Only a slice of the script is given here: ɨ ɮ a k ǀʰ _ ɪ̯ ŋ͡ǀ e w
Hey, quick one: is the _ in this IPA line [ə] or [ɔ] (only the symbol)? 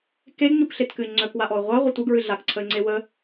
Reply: ə